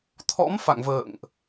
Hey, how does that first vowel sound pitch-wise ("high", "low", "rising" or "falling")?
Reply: rising